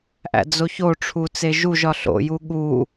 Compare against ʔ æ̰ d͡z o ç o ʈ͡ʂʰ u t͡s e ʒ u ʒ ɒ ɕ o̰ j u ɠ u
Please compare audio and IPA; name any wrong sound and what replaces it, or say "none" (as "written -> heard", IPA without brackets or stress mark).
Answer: ɕ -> ɬ